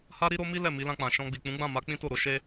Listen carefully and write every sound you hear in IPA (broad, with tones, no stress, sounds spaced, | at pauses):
h a˦ ɾ i˦ ɾ o˦ m i˦ l ɛ˦˨ m i˨˦ l ã˧ k͡p ã˨ ʃ ɔ̃˧ ɡ͡b i˨ k͡p ũ˨˦ ɡ͡b ã˦˨ m a˨˦ k͡p ĩ˦ t o˦˨ ɾ o˨˦ ʃ e˦